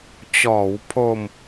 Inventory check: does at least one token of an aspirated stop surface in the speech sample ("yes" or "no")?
yes